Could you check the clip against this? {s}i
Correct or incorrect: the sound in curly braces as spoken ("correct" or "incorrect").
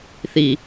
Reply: incorrect